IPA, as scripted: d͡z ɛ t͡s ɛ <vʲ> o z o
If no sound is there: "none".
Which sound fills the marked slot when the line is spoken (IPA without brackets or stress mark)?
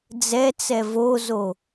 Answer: v